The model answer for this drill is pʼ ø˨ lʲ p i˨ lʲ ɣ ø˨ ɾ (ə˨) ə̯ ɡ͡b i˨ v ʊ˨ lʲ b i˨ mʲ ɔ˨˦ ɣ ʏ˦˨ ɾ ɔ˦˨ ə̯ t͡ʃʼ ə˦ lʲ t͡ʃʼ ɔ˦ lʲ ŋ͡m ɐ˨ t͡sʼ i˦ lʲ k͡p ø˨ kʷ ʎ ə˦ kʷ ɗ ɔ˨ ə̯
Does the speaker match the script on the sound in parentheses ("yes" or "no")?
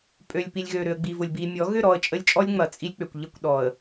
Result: no